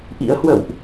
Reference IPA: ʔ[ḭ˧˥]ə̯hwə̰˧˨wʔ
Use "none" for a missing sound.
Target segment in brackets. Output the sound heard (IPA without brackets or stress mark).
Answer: ḭ˧˥